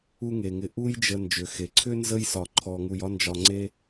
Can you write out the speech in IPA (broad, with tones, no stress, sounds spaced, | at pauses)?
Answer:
u˦ ŋ e˩ ŋ ɪ˨ ʔ u˦ j d͡ʒ ə˨ n d͡ʒ ʏ˩ x e˩ ǀʰ ʏ˥ n z ə˥ j s ɒ˨ ǃʰ ɔ˨ ŋ u˨ j ɒ˦ n d͡ʒ ɒ˨ ŋ͡ǀ e˦